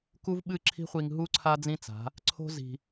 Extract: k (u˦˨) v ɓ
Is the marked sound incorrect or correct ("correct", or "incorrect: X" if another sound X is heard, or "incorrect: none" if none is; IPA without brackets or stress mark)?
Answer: incorrect: u˦